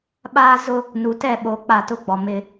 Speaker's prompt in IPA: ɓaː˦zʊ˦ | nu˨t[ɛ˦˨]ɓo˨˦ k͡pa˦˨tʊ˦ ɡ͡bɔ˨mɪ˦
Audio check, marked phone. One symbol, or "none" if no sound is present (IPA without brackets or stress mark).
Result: ɛ˦˨